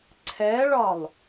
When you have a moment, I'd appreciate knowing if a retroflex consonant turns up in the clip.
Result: yes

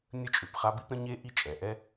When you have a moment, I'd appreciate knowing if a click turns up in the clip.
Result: no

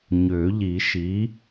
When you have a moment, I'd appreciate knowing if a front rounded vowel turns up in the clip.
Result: yes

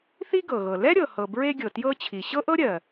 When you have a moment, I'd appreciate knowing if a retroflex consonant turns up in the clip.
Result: no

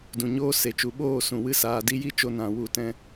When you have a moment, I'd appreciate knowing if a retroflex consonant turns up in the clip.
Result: no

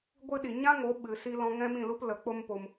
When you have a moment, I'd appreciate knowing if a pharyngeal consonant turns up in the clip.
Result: no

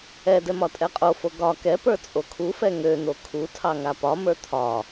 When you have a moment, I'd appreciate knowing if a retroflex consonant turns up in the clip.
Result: no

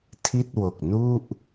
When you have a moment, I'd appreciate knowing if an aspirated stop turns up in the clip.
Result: yes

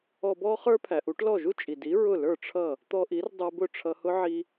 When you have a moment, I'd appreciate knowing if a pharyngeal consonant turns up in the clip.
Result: yes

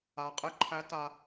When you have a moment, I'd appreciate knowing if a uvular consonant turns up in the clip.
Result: yes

